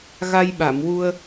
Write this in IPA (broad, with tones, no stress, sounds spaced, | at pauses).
ɣ a˧ j ɓ a˨˩˨ m w u˧ ə̯